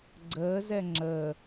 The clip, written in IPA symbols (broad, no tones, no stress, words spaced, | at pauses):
ɡ͡ǀəːzɛ ŋ͡ǁəː